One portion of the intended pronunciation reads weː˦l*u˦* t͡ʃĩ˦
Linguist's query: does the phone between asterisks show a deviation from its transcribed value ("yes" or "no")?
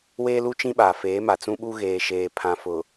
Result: no